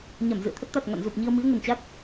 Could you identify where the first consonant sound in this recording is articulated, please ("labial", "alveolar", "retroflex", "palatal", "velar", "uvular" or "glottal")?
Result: palatal